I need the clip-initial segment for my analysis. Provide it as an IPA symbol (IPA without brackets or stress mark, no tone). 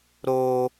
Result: ɾ